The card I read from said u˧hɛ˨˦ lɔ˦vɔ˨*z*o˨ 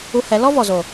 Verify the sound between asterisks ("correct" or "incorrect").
correct